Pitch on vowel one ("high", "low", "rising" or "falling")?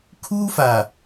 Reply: high